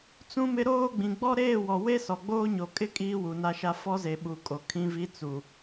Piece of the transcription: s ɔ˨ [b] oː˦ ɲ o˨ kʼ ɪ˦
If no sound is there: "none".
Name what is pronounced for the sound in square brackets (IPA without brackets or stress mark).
ɡ͡b